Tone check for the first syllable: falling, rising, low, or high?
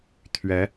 rising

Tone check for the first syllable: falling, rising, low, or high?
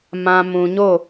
low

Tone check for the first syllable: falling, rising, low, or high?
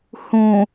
low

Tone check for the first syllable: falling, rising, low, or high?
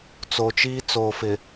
low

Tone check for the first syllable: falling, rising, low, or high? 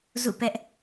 falling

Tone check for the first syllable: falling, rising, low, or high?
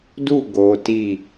falling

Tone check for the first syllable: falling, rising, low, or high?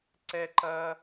high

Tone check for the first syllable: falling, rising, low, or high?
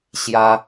high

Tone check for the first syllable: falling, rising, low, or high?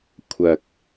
low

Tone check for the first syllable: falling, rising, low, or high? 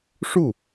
falling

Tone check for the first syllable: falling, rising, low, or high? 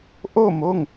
falling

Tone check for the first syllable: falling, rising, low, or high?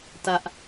high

